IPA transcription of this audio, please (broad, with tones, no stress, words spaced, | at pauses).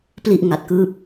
pli˥˩ʔ ŋa˨˩t̚kɯː˦˥p̚